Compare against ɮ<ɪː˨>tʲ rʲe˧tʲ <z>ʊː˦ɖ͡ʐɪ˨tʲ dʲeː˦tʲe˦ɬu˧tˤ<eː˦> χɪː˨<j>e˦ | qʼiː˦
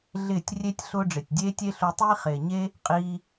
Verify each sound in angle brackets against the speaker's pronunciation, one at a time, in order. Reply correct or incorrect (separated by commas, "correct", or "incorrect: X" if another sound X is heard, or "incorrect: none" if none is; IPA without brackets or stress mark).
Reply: incorrect: ɪː˦˨, incorrect: ɬ, incorrect: iː˦, incorrect: ɲ